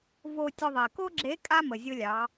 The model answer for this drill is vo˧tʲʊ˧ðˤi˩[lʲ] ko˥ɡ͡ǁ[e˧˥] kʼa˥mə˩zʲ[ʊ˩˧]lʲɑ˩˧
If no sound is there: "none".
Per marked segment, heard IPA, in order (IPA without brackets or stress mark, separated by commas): none, e˧˥, ʊ˧